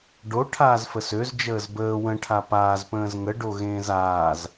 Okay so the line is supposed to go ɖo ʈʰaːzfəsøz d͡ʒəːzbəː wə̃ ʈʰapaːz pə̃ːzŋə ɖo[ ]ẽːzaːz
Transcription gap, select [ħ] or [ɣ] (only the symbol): ɣ